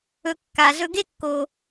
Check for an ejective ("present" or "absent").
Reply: absent